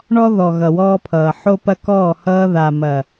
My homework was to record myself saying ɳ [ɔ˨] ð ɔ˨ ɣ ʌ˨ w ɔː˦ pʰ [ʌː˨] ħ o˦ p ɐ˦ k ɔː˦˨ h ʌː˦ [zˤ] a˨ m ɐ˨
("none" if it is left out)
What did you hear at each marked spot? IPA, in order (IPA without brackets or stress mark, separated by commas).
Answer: ɔ˦, ʌː˨, ð